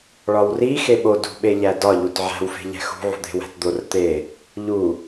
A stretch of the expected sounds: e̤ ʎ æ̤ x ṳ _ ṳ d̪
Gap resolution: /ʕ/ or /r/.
ʕ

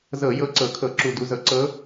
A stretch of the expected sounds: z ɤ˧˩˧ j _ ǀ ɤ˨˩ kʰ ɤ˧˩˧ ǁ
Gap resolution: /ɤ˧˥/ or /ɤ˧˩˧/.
ɤ˧˥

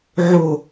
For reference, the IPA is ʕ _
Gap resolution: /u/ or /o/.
o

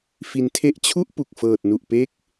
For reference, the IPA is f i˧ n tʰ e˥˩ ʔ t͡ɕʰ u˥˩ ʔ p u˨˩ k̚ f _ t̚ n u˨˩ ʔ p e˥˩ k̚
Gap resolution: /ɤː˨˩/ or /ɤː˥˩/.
ɤː˨˩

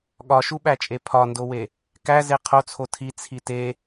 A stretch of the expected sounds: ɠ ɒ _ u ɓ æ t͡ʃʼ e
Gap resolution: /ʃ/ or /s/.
ʃ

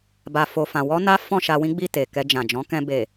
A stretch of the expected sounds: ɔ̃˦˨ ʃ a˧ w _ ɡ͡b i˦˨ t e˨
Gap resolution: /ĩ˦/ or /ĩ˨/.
ĩ˦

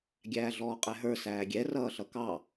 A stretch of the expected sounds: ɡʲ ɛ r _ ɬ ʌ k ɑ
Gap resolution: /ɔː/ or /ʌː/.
ʌː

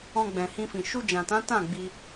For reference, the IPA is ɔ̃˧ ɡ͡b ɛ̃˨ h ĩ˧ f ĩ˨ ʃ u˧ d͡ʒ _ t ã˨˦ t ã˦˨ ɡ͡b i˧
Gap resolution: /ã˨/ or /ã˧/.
ã˨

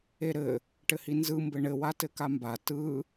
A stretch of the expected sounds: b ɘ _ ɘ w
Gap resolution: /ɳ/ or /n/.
ɳ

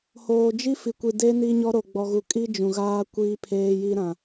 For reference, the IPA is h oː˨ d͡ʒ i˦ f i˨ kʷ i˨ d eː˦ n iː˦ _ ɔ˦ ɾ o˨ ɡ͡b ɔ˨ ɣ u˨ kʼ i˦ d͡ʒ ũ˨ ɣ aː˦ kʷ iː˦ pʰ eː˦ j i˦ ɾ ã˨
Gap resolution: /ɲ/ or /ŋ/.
ɲ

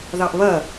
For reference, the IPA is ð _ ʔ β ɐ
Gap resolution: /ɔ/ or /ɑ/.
ɑ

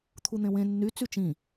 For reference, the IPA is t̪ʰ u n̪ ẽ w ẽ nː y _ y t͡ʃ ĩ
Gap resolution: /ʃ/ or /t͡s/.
t͡s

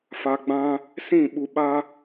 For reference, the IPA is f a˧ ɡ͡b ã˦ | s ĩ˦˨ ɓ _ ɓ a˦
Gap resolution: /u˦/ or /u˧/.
u˧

